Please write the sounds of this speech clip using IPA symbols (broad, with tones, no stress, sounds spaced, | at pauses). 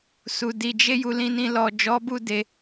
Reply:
s u˨ d i˨ d͡ʒ e˧ j u˧ l ĩ˧ n ĩ˧ l ɔ˨ d͡ʒ ɔ˨˦ b u˦˨ d e˧